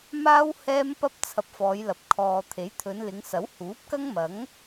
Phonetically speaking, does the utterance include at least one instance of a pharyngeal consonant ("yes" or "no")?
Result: no